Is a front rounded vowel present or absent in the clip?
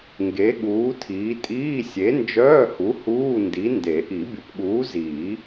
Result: present